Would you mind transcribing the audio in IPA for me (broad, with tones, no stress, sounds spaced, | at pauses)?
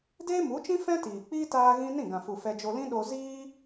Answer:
d eː˦ m u˨˦ t͡ʃ ĩ˦ f ɛ̃˦ t iː˨ k͡p iː˦ t aː˦ ɣ ĩ˦ n ĩ˦˨ ɡ ã˨ f u˨ f ɛ˧ d͡ʒ o˧ l ĩ˦ ɗ o˧ z iː˦